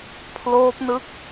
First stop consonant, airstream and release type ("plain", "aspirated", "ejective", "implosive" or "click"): aspirated